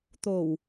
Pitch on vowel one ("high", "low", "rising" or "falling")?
low